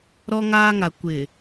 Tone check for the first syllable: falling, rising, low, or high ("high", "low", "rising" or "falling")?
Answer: high